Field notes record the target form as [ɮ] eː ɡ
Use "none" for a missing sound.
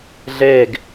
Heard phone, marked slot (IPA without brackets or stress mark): ɮ